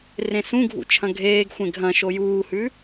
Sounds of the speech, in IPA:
r ẽ s ũ ɡʱ ṵ t͡ʃʰ ɐ̃ ɡʱ eː ɡ xʷ ẽ ɡʱ ɐ̃ ʃ o j uː h ʉ

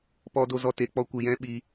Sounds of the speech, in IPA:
p ɔ˧ d o˧ z ɔ˧ t e˨ k͡p ɔ˧ kʷ ɨ˨ j ɛ̃˦ ɓ i˧

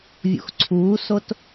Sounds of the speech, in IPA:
vʲ ṵ x ǀʰ uː s o t

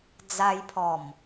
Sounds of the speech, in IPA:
d͡z a˧ j pʰ ɔ˨˩ m

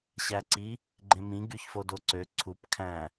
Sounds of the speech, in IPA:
ɕ æ ǀ i | ɡ͡ǃ ẽ m ĩ ɡ y ç f o d o ǀ ø ǀʰ u p kʰ æ̃

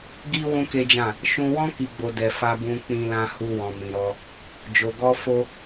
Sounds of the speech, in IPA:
ɡ i˦ w ũ˦ k e˦ d͡ʒ ã˦˨ | ʃ ũ˧ w ɔ̃˦ k i˧ ɡ͡b o˧ d ɛ˨ f a˧ b ũ˧ k͡p ĩ˧ l ã˧ h u˦ w ɔ̃˧ m ĩ˧ ɾ ɔ˦ | d͡ʒ o˧ ɡ ɔ˦ f o˦

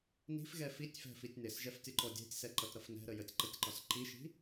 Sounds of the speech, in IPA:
n i̤ f ɣ ɛ f i tʲ f ɛ̤ f i tʲ n ɪ s ʒ ɛ f tʲ ɔ ǃ ɔ dʲ ɛ̤ tʲ s ɛ ǃ ʌ t ɾ ʌ f n ɛ̤ ɾ ə j ə tʲ ǃ ʌ tʲ ǃ ɒ s ǃ i ʃ i̤

